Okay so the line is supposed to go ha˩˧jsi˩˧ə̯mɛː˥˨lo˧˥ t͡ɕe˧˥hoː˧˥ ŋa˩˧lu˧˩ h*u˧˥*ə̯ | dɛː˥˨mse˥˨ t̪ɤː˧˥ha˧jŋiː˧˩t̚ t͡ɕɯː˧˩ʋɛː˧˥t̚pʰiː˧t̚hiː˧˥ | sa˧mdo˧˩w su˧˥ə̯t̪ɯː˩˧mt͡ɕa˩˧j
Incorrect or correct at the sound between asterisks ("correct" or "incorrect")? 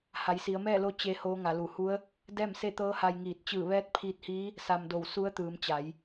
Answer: correct